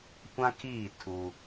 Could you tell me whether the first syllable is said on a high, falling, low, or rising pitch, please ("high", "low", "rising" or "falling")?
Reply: high